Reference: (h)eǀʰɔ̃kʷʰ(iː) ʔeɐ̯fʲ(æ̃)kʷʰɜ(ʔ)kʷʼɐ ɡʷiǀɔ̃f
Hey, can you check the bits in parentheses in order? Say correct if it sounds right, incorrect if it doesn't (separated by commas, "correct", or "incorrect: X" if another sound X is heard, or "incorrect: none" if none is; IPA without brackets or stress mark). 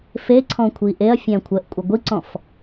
incorrect: f, incorrect: i, correct, correct